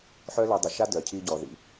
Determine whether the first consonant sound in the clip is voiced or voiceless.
voiceless